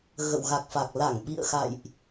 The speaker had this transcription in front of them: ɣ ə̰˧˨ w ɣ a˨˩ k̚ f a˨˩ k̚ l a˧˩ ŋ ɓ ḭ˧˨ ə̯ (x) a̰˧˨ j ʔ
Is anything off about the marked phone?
no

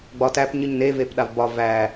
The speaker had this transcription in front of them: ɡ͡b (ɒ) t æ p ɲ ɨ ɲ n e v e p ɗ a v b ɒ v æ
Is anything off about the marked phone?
no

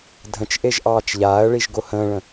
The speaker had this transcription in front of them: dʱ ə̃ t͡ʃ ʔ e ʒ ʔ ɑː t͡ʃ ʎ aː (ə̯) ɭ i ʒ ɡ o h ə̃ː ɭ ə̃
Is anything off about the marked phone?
no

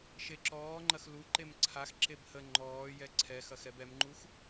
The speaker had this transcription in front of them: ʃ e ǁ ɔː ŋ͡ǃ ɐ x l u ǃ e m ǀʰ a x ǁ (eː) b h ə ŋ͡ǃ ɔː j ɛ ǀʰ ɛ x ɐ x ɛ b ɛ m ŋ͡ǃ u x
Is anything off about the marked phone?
yes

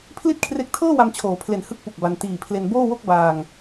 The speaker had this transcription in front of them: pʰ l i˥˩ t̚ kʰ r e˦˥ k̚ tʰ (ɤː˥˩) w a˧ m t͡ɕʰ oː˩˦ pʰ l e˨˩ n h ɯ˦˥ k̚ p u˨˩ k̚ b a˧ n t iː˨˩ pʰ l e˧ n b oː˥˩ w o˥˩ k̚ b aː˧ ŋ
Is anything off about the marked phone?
no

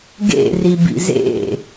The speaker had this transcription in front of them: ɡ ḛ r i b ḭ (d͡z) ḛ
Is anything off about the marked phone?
yes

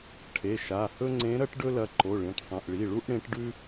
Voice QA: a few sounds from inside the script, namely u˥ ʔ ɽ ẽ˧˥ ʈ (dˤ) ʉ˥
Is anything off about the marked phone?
yes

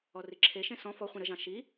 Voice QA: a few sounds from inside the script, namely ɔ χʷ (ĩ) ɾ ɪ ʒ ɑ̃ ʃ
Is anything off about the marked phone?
no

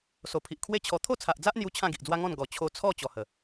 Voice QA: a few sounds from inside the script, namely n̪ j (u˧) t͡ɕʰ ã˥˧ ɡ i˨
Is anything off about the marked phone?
no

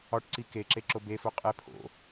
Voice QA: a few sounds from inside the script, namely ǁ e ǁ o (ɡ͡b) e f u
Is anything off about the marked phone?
yes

